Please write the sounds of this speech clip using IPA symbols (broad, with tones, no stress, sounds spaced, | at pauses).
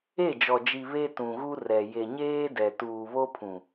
e˦˨ d͡ʒ ɔ˨ d͡ʒ i˨ β e˦ t ũ˨ ɣ u˦ r ɛ˨ j e˨ ɲ eː˦ d ɛ˨ t uː˨ β o˦ pʰ ũ˨